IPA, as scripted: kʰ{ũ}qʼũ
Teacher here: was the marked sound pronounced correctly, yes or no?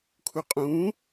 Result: no